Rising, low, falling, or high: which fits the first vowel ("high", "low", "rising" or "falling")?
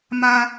high